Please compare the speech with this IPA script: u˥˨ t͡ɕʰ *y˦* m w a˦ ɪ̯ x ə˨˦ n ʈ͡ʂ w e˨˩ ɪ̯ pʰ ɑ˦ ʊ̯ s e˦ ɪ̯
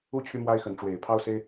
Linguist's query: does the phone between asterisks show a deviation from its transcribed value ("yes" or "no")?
no